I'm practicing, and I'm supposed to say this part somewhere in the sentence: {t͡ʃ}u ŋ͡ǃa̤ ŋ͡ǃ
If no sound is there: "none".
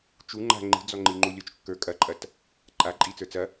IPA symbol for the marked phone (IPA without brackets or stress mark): t͡ʃ